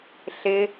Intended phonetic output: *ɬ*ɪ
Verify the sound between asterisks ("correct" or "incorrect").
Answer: correct